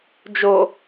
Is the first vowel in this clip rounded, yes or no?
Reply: yes